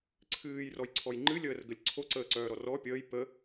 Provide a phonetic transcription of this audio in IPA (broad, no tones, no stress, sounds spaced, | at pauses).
ǀʰ ɨː j r ɔ j ǀʰ ɔ j ŋ͡ǃ ɨ lʲ əː r ɡ ə lʲ ǀʰ o ǀ əː ǀ œː ɾ ɔ r ɔ pʲ əː j p ə